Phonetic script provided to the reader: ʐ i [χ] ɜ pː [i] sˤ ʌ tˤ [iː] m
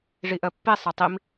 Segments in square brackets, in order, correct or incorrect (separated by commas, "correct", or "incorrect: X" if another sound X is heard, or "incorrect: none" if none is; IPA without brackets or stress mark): incorrect: ʔ, correct, incorrect: i